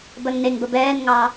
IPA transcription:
bɜŋneŋbə bɛːnŋɑː

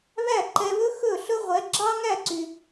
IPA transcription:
βæ˥˩ǃɛ˧βɵ˥ xɵ˥˩ ɬɵ˥ʁʷɛ˩˥ ɡ͡ǁɑ˥ŋæ˥˩ǀy˩

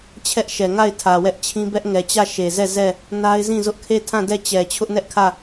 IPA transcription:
t͡ɕʰɛ˦ʔʃɛ˨ ŋa˦˨ɪ̯ tʰä˨wɛ˦ʔt͡ɕʰĩ˦ bɛ˦ʔŋɛ˨t͡ɕä˦˨ ʃe˨zɛ˦˨ zɛ˦˨ | na˦ɪ̯zĩ˦˨zʊ˦ʔ kʰe˦˨ tʰã˦˨dɛ˦˨t͡ɕɛ˨ t͡ɕʰʊ˦ʔnɛ˦ʔkʰä˦˨

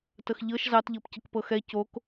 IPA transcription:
təxʎɤʃ zɑtʎɤpcək pɤxɛ cok

